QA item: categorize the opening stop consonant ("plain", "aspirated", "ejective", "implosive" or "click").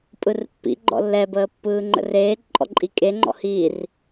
ejective